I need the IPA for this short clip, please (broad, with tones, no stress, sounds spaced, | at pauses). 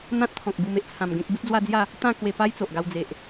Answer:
n̪ ã˦ t̚ t̪ʰ ɔ̃˨ k̚ b u˧ m e˦ ʔ t͡sʰ ã˧ m ɡ ẽ˦ k̚ b u˦ t̚ d͡z w a˦ d͡z j a˥˧ | t̪ ã˥˧ k w e˧ p a˦ j t͡s o˨ ʔ ɡ a˧ w d͡z e˨ ʔ